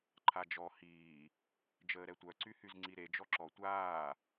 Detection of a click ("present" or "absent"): present